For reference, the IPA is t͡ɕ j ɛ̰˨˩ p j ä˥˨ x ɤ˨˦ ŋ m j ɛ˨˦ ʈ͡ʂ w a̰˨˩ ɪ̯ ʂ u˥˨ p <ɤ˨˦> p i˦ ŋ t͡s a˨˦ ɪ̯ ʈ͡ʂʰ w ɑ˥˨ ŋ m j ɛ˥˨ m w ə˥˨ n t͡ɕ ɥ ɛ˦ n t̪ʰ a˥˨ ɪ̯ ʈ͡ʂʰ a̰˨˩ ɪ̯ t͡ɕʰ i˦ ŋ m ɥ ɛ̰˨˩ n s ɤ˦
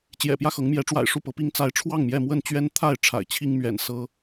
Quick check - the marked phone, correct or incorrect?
correct